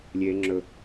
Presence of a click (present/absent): present